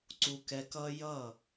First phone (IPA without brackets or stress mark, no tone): ǀ